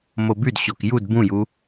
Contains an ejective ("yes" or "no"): no